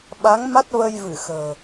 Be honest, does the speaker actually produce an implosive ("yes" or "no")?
yes